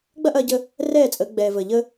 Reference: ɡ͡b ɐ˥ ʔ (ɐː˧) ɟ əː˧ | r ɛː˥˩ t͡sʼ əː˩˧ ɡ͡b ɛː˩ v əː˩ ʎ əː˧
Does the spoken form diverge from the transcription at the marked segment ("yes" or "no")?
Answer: no